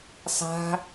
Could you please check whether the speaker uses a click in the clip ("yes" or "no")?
no